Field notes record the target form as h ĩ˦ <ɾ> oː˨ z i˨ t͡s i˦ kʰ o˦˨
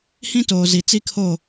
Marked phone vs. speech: incorrect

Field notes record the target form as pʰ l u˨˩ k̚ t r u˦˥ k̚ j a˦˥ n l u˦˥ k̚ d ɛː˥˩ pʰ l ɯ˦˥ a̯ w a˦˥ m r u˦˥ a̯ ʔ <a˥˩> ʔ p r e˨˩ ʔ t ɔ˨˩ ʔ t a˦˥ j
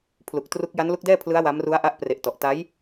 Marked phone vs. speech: incorrect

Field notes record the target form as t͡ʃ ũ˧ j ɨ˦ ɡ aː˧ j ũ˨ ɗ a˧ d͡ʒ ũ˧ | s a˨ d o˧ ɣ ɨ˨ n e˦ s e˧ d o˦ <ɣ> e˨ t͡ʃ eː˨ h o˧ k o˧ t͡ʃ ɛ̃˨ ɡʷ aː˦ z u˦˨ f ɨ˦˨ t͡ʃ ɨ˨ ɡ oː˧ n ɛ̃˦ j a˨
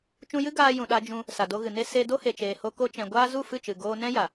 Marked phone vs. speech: incorrect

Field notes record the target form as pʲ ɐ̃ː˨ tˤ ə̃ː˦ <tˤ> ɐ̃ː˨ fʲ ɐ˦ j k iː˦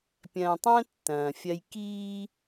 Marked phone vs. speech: incorrect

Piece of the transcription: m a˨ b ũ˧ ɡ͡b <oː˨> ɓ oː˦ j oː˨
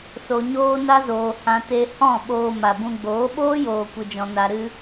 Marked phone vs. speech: incorrect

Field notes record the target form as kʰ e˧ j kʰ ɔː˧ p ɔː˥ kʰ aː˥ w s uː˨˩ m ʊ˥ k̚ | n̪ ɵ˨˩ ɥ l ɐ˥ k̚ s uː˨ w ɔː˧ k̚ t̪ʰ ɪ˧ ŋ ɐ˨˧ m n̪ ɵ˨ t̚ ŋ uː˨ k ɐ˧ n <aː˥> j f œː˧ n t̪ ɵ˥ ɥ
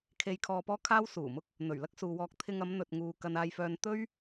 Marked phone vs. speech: incorrect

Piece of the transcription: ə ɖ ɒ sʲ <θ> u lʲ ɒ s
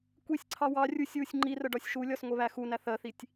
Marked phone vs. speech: incorrect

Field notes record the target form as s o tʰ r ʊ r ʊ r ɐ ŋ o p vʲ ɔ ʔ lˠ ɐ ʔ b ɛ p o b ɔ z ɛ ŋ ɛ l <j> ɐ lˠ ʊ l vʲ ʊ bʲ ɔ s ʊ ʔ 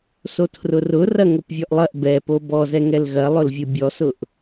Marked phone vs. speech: incorrect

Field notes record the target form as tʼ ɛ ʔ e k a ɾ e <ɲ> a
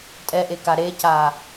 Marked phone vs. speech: incorrect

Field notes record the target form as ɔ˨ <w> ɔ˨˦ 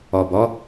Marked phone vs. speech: incorrect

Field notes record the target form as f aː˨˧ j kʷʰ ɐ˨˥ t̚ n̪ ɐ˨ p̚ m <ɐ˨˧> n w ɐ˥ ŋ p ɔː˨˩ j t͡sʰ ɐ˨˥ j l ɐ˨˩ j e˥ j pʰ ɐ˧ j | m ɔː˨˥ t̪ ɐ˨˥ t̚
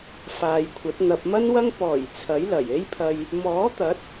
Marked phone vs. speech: incorrect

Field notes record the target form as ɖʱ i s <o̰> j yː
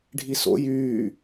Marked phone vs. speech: correct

